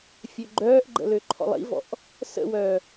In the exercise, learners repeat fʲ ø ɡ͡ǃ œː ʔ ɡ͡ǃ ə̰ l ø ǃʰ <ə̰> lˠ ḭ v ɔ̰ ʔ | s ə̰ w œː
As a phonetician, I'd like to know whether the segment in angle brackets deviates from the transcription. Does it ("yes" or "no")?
yes